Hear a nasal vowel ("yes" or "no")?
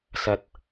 no